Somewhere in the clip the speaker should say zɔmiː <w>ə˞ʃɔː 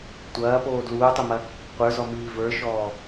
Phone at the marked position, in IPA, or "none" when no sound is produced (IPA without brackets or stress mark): v